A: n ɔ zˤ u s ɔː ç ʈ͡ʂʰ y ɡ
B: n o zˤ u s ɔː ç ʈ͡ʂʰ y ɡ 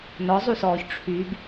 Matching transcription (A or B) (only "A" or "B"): A